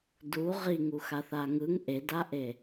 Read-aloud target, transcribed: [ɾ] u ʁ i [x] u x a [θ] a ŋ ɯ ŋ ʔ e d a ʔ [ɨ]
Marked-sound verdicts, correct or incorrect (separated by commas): incorrect, incorrect, correct, incorrect